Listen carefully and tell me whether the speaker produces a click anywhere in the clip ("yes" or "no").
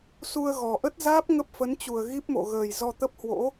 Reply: no